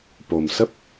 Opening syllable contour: low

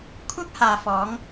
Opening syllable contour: high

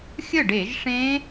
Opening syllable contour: falling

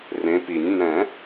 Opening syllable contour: rising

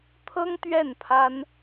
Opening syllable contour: high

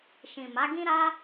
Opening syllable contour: low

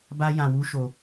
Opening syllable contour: high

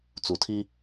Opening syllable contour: low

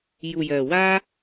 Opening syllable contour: low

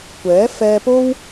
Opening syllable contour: rising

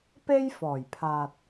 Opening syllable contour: high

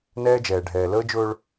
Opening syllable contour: high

